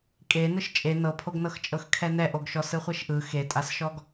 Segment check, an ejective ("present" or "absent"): present